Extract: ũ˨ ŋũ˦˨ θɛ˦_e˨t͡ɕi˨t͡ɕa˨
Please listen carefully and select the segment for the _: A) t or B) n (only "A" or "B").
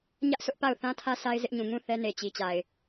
B